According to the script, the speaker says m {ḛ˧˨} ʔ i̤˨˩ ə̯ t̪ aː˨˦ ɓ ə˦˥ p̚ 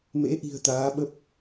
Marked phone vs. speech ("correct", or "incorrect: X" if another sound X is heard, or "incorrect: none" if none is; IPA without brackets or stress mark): incorrect: ḛ˧˥